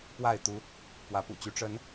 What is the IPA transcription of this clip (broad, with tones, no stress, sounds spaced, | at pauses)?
p w a˥˨ ɪ̯ t̪ u˦ | p w ä˨˦ p ṵ˨˩ t͡ɕ y˨˦ ʈ͡ʂ ə˨˦ n